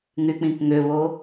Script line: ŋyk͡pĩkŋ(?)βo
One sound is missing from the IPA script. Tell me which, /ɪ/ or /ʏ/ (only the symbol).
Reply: ʏ